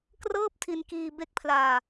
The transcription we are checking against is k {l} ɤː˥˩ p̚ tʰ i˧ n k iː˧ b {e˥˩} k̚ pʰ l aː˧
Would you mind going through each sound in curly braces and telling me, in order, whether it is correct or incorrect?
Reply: incorrect, incorrect

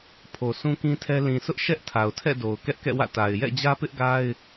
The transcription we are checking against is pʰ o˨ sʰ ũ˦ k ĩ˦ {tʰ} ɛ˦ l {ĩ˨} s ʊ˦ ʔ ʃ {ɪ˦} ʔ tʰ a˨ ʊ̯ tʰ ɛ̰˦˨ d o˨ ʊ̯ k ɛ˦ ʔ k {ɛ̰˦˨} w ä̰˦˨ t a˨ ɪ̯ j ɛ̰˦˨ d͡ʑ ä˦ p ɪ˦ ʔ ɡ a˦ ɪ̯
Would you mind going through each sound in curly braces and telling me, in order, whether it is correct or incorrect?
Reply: correct, correct, incorrect, correct

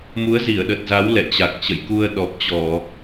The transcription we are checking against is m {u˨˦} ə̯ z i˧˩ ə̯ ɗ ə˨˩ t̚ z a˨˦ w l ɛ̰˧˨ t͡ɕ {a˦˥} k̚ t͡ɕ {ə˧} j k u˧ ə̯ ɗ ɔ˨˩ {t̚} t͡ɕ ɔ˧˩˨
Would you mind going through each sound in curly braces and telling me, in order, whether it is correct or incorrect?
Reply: correct, incorrect, incorrect, incorrect

